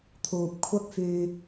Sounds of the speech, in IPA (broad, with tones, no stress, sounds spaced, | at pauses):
t̪ʰ uː˨ p̚ kʷʰ ɐ˥ k̚ f yː˧